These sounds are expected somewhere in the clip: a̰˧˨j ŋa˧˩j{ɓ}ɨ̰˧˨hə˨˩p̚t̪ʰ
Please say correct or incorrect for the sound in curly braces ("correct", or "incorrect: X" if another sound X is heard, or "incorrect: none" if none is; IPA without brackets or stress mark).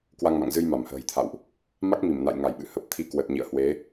correct